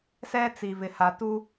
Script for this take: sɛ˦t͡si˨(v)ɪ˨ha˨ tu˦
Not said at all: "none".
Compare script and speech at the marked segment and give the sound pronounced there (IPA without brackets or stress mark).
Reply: v